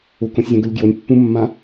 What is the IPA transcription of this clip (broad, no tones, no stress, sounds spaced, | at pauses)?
ʊ k õ sʲ zʲ ã ɡ ʊ lʲ ɡ j o nʲ pː ũ mː ã